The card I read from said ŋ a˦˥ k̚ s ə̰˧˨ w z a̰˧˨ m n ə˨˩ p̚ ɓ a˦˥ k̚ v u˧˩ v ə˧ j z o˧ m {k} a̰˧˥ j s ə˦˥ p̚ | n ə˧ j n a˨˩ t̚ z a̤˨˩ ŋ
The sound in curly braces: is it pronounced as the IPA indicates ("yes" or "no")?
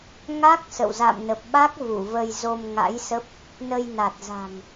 no